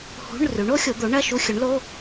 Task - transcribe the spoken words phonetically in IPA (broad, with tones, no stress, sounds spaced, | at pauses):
h ṳ˧˥˧ ɳ r ʉ˩˥ ɳ o˩˥ xʲ o˩˥ d̪ o˩˥ ɳ ɐ˧˥˧ ʃ u˧˥˧ xʲ ɵ˩˥ ɳ l o˧˥˧